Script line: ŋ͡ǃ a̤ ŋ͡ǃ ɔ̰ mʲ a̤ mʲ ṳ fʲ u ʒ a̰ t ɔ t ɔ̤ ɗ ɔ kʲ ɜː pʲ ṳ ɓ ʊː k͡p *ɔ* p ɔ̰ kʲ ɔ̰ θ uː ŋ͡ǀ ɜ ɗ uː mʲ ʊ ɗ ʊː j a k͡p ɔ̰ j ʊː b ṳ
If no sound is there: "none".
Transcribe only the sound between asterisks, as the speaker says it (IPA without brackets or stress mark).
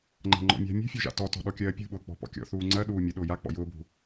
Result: ɔ̤